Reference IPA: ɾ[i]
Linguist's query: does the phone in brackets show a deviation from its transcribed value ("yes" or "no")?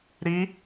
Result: no